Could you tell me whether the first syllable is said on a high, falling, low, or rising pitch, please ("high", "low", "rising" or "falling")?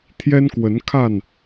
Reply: high